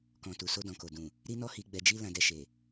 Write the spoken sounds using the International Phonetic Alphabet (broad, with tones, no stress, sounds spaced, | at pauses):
k ɔ̃˨ t u˨ s o˧ d ɔ̃˨ k o˨ d ũ˨ | ɾ i˦ n ɔ˦ h i˧ ɡ͡b ɛ˧ d͡ʒ i˦ l ã˧ d ɛ˧ ʃ e˨